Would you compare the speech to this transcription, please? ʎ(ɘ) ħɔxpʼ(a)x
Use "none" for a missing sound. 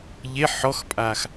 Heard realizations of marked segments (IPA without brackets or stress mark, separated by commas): e, a